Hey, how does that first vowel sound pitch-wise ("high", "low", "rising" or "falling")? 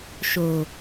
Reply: low